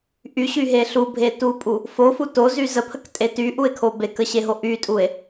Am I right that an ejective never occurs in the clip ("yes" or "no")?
no